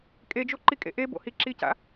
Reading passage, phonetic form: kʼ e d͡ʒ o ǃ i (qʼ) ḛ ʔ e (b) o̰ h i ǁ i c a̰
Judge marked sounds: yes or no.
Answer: no, yes

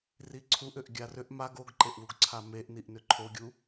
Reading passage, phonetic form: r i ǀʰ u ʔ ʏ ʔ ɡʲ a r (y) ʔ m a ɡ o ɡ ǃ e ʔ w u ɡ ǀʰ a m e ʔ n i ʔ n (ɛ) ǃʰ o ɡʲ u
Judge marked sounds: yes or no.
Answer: no, no

